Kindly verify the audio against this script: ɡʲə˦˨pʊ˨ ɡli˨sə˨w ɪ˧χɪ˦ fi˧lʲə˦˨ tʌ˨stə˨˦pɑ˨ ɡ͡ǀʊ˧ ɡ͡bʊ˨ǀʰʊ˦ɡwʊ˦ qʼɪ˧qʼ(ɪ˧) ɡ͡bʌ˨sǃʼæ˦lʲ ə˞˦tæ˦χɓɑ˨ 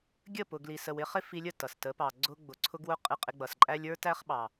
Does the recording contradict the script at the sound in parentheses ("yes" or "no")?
no